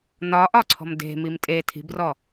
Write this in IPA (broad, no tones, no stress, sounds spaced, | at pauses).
n ɒ ʔ ɒ ǀʰ ɔ̤ m d e̤ m i m tʼ e tʰ i̤ b r ɔ